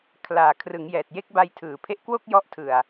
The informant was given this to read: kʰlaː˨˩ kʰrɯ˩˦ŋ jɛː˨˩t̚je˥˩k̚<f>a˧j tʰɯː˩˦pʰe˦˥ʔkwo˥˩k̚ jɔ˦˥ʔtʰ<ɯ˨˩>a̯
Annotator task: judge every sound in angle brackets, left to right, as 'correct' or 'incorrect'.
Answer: incorrect: b, correct

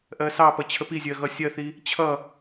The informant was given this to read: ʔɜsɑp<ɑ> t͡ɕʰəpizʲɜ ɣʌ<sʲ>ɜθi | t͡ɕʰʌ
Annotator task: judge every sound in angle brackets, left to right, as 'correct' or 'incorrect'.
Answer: incorrect: ʌ, correct

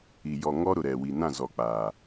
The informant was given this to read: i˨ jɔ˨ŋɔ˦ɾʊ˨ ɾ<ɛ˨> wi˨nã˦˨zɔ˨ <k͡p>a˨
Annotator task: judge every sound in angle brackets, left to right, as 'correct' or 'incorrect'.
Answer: correct, correct

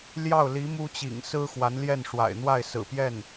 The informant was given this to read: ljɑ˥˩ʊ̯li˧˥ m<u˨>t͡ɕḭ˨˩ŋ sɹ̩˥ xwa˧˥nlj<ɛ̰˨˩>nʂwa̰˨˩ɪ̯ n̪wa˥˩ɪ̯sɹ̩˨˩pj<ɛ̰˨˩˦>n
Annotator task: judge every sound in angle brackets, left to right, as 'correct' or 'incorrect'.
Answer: incorrect: u˥, incorrect: ɛ˥˩, incorrect: ɛ˥˩

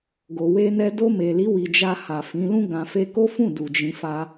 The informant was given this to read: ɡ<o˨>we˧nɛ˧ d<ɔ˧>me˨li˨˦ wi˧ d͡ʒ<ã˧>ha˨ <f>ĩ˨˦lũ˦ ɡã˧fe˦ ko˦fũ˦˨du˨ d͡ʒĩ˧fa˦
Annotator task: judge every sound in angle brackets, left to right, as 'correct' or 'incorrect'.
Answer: correct, incorrect: o˧, incorrect: a˧, correct

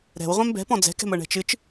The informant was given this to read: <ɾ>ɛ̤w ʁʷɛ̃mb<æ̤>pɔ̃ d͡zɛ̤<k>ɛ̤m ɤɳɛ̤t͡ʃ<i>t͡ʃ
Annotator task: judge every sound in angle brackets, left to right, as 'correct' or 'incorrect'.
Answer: correct, incorrect: ɛ̤, correct, incorrect: ɨ

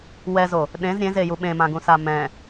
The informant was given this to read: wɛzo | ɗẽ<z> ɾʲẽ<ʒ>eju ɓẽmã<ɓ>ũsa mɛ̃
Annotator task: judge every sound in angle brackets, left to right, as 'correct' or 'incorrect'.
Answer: correct, incorrect: z, incorrect: ɡ

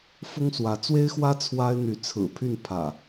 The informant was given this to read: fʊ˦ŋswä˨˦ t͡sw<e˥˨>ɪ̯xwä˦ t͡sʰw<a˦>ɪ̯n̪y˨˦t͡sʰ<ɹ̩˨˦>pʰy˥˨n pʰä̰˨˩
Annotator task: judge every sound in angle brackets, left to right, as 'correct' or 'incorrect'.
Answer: incorrect: e˦, correct, incorrect: ɹ̩˨˩

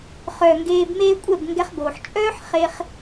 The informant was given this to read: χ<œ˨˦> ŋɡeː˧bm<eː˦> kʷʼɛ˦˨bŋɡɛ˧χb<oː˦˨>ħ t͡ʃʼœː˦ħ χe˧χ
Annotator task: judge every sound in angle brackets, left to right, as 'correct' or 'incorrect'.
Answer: incorrect: œ˨, correct, incorrect: oː˨

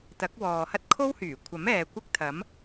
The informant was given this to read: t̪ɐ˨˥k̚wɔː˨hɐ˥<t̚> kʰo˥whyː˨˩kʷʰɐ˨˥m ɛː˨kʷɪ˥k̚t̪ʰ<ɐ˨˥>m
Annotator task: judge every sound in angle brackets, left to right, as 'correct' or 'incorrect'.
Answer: correct, correct

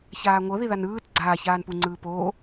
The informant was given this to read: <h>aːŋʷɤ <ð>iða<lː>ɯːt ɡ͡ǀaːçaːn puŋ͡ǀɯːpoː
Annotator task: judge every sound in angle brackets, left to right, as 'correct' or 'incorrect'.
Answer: incorrect: ç, correct, incorrect: n

